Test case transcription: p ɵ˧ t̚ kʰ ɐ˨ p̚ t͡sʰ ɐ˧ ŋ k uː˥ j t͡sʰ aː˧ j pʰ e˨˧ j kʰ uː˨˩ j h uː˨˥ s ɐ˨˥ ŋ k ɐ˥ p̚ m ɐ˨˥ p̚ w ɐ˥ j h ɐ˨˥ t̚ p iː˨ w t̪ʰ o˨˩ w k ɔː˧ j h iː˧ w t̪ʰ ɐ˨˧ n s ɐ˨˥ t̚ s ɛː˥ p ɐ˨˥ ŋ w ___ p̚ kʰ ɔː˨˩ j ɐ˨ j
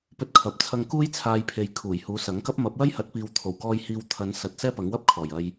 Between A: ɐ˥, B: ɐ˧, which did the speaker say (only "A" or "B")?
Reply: A